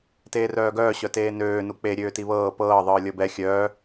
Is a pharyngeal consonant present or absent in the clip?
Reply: absent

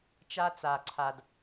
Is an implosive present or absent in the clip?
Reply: absent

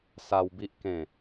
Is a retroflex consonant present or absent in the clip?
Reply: absent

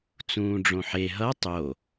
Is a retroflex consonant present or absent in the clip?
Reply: present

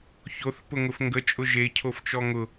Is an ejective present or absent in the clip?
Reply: present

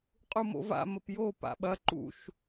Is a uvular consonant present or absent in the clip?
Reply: present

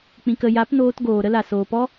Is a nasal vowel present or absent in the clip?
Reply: present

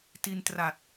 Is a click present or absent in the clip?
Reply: absent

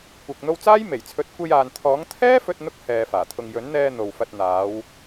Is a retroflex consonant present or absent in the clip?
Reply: absent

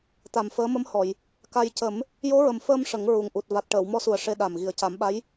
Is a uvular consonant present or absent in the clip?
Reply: absent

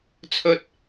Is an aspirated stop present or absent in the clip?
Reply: present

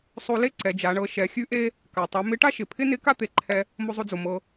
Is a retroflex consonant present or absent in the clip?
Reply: present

